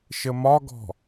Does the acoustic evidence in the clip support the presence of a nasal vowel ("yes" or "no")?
no